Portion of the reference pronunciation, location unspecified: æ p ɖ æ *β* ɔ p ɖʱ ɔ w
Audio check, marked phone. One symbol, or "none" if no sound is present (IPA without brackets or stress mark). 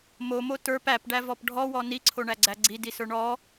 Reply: v